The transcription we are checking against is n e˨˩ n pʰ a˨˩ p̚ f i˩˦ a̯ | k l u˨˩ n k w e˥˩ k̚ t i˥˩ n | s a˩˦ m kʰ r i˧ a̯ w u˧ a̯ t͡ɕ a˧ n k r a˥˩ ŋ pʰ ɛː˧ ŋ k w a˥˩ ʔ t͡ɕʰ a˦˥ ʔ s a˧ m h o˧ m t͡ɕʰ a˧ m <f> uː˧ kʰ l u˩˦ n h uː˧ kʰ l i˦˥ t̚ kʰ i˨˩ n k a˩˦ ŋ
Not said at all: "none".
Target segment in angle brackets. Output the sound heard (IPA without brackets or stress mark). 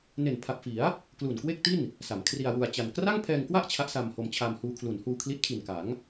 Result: h